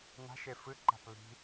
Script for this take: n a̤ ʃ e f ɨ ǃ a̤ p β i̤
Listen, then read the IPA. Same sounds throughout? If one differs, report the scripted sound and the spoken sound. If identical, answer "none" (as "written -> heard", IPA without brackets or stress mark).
none